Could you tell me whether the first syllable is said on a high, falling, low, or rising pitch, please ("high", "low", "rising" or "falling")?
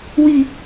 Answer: low